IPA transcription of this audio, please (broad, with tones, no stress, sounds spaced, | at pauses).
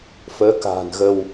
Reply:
f əː˨˦ k a̤ː˨˩ n ɣ ə˧ w